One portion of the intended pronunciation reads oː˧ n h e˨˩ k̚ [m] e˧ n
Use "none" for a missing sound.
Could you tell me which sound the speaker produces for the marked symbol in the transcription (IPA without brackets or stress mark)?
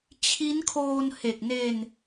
n